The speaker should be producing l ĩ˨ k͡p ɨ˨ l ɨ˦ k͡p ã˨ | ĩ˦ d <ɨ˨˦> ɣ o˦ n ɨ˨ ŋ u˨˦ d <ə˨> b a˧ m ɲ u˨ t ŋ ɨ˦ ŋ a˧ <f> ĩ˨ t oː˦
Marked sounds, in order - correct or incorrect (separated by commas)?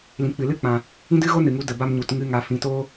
incorrect, correct, correct